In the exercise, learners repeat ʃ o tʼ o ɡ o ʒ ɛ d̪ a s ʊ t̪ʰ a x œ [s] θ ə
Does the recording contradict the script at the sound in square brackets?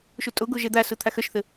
yes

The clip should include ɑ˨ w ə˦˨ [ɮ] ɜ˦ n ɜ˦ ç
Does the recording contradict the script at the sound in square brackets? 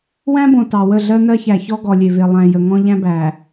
no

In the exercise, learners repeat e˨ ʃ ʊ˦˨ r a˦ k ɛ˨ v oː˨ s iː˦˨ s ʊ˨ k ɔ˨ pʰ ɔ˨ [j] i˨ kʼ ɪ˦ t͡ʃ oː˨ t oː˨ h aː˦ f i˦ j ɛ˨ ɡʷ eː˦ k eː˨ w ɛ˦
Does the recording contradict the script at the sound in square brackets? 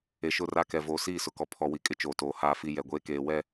yes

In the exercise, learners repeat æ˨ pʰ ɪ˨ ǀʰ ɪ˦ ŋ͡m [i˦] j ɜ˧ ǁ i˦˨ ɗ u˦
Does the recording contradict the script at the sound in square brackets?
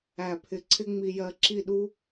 yes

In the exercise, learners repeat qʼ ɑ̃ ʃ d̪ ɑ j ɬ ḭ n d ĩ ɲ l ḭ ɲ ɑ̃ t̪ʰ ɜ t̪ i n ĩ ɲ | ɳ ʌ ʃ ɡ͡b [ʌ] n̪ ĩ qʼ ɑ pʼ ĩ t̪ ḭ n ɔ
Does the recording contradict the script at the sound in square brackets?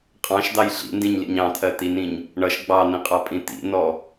yes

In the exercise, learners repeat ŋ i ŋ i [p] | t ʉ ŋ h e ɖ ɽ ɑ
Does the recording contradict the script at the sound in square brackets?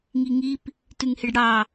no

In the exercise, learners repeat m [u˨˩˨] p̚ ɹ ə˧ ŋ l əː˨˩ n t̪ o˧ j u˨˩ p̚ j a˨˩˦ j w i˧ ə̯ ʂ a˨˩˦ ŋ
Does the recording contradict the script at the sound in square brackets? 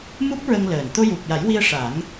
yes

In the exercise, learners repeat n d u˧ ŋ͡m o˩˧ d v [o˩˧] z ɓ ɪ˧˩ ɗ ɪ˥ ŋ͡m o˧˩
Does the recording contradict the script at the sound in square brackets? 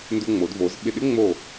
no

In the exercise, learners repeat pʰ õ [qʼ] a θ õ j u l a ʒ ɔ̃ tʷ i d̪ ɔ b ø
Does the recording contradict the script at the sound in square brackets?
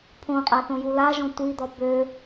no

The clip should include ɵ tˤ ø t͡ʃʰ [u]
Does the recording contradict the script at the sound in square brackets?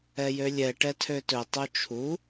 no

